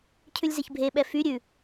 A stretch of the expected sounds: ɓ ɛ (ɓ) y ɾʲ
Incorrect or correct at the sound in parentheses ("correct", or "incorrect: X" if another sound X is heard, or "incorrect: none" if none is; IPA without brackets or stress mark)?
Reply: incorrect: f